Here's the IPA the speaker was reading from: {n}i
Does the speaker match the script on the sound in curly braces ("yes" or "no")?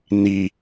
yes